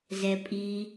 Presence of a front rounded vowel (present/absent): absent